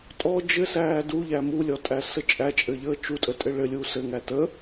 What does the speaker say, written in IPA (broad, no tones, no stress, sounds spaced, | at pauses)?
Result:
tʼ ɔ d͡ʒ ɘ s æː d u ʎ æ m u lʲ ɔ tʼ æ s ə t͡ʃʼ æ t͡ʃʼ ɘ ʎ əː t͡ʃ u tʼ ə tʼ ɘ ɭ ɘ lʲ uː s ɘ ŋ æ t ə